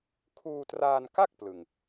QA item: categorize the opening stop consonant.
aspirated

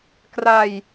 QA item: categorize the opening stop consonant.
plain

